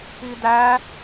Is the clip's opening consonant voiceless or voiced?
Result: voiced